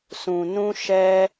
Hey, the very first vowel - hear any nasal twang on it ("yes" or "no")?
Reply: yes